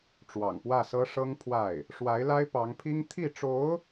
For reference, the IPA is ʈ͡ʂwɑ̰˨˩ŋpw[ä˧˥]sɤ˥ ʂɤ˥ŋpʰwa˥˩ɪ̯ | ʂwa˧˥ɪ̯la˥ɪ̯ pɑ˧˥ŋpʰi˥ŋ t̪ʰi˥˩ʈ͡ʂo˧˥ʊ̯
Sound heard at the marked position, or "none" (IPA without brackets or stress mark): ä˥˩